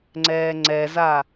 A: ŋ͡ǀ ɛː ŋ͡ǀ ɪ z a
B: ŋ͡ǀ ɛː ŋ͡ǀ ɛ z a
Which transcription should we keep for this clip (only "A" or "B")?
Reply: B